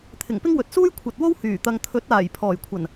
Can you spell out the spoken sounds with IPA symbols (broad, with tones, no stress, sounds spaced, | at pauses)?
t̪ʰ ɪ˨˩ ŋ p ɪ˥ ŋ w ɵ˨ t̚ s uː˥ j kʷʰ ɐ˨ t̚ w o˥ w h yː˨˩ t̪ ɐ˨ ŋ t̪ʰ ɵ˨˥ t̚ aː˨˩ j pʰ ɔː˨˩ j kʷʰ ɐ˨˩ n